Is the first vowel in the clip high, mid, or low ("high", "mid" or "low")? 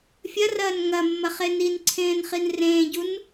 low